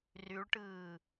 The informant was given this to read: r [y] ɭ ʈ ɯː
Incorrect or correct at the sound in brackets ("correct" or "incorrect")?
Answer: correct